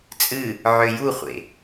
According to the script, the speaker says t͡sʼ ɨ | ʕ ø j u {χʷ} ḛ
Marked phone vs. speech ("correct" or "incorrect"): correct